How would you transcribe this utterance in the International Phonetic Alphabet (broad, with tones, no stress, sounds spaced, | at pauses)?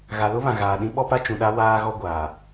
ɣ a˨ l ʊ˦ β ã˨ ɣ aː˨ ɗ ĩ˦ ɓ ɔ˦ p a˦ t͡ʃ ũ˨ ɗ a˦ w aː˦ ɣ ɔ˦ ɡʷ aː˨